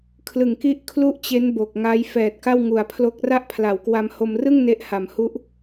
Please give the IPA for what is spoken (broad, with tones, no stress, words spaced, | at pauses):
kʰlɯ˨˩ŋki˦˥ʔ kʰlu˥˩ʔt͡ɕe˦˥n bo˨˩k̚ŋa˦˥j fɛː˨˩t̚ka˥˩wŋu˨˩a̯pʰlo˦˥k̚ ra˥˩ʔpʰla˩˦wkwa˧mho˧m rɯ˥˩ŋ ne˦˥ʔha˨˩mhu˦˥ʔ